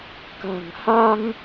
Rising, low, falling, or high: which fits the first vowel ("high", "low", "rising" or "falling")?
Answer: low